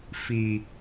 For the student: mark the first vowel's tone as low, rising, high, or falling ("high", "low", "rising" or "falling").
low